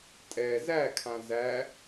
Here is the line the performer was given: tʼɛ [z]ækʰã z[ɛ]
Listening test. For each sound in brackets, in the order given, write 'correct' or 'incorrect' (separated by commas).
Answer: correct, incorrect